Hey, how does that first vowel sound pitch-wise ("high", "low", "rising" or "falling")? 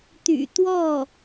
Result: low